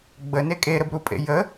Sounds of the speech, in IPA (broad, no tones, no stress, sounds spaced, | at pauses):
ɡ͡b ə n e kʼ e ɾ ə b ɾ u pʼ ḛ j ə